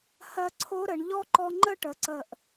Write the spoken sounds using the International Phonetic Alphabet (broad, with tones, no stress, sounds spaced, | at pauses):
h ɜ˧ ǀʰ o˦˥ ɾ ə˩˧ ɳ ʎ ɔ˦˥ ǃ ɔ˧ ŋ͡ǃ ə˥˧ ʈ ə˩˧ ǀ ə˨˩ ʔ